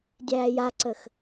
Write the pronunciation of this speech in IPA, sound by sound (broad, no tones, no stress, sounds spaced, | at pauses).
dʲ æː j a ǀ ə x